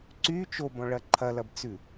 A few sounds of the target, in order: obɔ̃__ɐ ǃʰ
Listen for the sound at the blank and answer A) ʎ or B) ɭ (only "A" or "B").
B